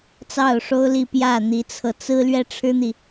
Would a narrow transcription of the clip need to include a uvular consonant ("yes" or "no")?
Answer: no